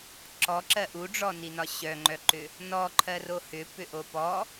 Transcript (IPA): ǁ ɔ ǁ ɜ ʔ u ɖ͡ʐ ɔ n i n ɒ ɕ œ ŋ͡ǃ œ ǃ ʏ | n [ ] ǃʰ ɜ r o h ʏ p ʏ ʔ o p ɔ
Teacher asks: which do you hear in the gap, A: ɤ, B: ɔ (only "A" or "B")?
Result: B